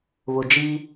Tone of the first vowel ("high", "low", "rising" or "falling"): low